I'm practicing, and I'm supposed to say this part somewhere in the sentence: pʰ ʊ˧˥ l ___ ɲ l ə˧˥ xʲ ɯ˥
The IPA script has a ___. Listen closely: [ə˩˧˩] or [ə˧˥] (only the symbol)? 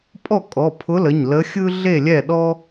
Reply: ə˩˧˩